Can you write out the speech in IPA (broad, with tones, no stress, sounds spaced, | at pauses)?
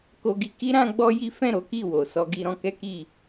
k o˧ ɡ i˧ k i˦ ɾ ã˦ ɡ͡b ɔ˦ j i˦ f ɛ̃˦˨ ɾ o˨˦ k i˦˨ w o˨ s ɔ˧ ɡ i˧ ɾ ɔ̃˧ k ɛ˦ k i˦˨